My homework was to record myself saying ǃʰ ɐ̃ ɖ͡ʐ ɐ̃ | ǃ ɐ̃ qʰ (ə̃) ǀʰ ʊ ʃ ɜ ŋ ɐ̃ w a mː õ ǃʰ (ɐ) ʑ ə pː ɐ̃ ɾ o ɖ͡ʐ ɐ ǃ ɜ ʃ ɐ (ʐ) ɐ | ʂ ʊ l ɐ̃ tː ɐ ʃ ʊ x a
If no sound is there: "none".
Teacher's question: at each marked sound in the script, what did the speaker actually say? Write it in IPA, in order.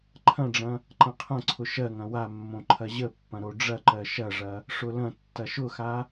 ɐ̃, ɐ, ʐ

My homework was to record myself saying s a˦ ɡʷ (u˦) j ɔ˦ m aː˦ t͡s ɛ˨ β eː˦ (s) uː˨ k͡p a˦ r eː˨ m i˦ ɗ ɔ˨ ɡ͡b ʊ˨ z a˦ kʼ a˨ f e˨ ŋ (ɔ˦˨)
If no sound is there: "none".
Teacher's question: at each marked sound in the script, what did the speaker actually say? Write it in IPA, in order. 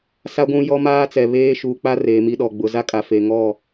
ũ˦, ʃ, ɔ˦˨

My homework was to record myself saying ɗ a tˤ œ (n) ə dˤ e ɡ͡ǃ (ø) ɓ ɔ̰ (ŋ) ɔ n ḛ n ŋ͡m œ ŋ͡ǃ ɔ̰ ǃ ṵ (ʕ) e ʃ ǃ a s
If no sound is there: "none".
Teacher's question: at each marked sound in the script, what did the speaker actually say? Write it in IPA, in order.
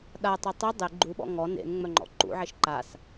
tˤ, u, ŋ, ʕ

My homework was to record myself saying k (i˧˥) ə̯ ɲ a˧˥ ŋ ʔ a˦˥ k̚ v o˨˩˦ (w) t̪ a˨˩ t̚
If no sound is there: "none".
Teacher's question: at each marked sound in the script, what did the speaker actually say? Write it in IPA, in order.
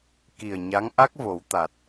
i˨˩, w

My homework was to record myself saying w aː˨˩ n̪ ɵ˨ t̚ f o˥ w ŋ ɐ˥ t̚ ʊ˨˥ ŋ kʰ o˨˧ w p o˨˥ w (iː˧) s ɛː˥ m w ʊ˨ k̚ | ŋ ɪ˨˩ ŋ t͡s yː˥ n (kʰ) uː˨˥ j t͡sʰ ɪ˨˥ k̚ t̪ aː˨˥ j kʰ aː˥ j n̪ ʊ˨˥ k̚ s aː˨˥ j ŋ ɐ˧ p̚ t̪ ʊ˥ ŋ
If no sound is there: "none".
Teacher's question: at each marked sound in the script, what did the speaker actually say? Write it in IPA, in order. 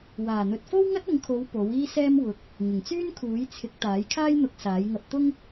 iː˥, kʰ

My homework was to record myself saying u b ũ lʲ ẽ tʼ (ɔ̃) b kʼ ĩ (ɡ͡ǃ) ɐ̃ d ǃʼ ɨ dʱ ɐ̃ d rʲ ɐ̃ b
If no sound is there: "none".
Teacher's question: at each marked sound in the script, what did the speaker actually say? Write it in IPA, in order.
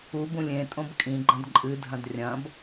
õ, ɡ͡ǃ

